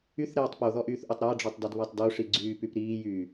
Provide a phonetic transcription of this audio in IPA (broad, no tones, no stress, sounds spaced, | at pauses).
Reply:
y θ ɾ ɛː tˤ p o ð ɔ ʔ yː θ ʔ o tˤ ɾ a ɖ͡ʐ ɔ tˤ d ɔ d β a tˤ d o ʂ i ɡ͡ǀ yː p y p ɾ iː j yː